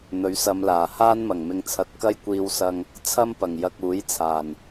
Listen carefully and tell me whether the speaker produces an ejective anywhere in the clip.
no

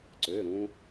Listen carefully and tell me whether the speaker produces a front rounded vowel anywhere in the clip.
yes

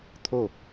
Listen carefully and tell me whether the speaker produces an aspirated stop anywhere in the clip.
yes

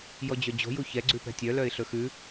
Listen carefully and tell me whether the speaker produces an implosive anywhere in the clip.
no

